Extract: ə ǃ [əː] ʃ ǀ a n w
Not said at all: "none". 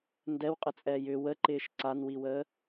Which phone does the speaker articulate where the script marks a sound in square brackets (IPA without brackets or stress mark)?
ɪː